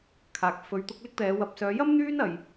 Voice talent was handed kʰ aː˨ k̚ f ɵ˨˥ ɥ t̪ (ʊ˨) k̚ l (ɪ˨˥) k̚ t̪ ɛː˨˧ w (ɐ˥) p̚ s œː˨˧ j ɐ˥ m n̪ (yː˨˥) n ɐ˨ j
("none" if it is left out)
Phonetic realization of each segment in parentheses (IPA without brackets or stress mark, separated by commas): ʊ˨˥, ɪ˥, ɐ˨˥, yː˥